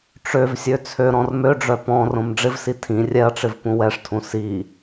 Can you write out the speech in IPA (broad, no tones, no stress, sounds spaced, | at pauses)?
ʈ͡ʂ ø v sʲ ø t͡sʰ ø ɾ ɔ̃ r m ø ɖ͡ʐ œ p ɔ̃ r õ m ɖ͡ʐ ɪ v s i tʰ ĩ rʲ ɛ ɐ̯ ʈ͡ʂ ɪ v p ũ w ɛ ʂ tʰ ũ s i